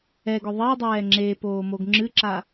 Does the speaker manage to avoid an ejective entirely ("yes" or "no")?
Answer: yes